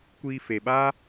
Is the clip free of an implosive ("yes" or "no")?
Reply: no